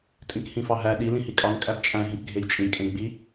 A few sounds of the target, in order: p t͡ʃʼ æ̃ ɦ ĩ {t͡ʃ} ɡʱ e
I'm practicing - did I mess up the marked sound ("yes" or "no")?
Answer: yes